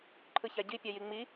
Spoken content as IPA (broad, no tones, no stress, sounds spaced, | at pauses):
ǃʰ ɯ ç a ɟ i pʲ a j i ŋ͡m i